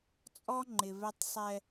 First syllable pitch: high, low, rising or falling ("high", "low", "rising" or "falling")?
high